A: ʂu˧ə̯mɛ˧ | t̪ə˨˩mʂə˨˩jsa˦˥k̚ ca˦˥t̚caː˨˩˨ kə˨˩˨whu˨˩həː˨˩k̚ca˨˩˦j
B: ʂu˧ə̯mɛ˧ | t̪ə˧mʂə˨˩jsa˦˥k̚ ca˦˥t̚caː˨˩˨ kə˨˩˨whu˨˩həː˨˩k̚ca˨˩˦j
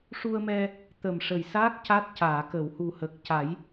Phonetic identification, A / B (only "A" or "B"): A